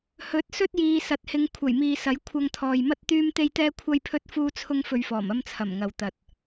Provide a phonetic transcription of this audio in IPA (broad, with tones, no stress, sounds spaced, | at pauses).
h ɵ˨˥ t̚ s ɵ˥ t̚ j iː˨ s ɐ˨ t̚ h ɪ˨˧ ŋ kʷʰ ɐ˨˩ j m iː˨ s ɐ˨˥ j kʷʰ ɐ˧ ŋ t̪ʰ ɔː˨ j m ɐ˥ t̚ t̪ yː˥ m t̪ e˥ j t̪ ɛː˥ kʷʰ ɐ˥ j pʰ ɵ˥ t̚ f uː˥ t͡sʰ ʊ˥ ŋ f ɵ˧ ɥ f ɔː˨˩ m ɐ˥ m t͡sʰ ɐ˨˩ m ŋ ɐ˨ w t̪ ɐ˨ t̚